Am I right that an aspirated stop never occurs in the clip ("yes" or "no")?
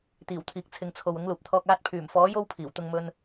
no